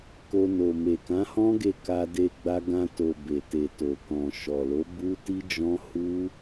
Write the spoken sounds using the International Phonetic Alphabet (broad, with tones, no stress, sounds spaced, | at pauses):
k o˧ n o˨ m e˨ k ã˨˦ h ɔ̃˦ ɡ e˦˨ k a˧ d e˧ ɡ͡b a˧ ɡ ã˧ t o˨ b e˨ t e˨ t o˨ k ɔ̃˨ ʃ ɔ˨ l o˨˦ b u˦ t i˦ d͡ʒ ɔ̃˦ h u˦